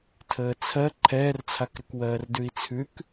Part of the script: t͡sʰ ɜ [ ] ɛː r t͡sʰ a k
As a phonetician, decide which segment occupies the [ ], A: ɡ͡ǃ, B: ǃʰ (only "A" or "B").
B